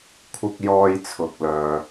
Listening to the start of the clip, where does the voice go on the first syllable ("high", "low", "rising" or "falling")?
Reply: low